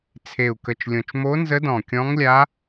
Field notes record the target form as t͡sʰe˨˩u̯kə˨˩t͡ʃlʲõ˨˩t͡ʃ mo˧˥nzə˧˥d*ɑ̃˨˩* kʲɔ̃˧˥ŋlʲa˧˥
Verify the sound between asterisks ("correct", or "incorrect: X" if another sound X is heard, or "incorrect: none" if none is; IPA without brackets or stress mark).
incorrect: ɔ̃˨˩